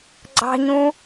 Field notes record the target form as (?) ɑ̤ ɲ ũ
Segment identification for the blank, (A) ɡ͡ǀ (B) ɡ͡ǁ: A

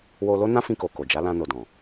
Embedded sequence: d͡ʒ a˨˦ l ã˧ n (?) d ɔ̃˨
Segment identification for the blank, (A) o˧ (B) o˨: B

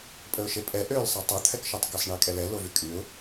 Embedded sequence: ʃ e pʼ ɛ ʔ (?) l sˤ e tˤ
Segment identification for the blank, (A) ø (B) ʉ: A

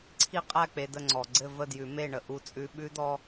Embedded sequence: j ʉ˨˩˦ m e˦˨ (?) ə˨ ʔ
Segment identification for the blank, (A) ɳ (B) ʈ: A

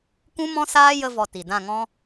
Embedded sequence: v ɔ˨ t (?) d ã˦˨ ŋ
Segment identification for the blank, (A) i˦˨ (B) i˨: B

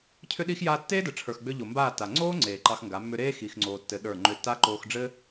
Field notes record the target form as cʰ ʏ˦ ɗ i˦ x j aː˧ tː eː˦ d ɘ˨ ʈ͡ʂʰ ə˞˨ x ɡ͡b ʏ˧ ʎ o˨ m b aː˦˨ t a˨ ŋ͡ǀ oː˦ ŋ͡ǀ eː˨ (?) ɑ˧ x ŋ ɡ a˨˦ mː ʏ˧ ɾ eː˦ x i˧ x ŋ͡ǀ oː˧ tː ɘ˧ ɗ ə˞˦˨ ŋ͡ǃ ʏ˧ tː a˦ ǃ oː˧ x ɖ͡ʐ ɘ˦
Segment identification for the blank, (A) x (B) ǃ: B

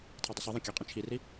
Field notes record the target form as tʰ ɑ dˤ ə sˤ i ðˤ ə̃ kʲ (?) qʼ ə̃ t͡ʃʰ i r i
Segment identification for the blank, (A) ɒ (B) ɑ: A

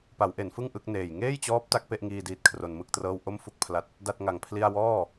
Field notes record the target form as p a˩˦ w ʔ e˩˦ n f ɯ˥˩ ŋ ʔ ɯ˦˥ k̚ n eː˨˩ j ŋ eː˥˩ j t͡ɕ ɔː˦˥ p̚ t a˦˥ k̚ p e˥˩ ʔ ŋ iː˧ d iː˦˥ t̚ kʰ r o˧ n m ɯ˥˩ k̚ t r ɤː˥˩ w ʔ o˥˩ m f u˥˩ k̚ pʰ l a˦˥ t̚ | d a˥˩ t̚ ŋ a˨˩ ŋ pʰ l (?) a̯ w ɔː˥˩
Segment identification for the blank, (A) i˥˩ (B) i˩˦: A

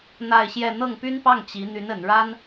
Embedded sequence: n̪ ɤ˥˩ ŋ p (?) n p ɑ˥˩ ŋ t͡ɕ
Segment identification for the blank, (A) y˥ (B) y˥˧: A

